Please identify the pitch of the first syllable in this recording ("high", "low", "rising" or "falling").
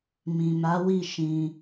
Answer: low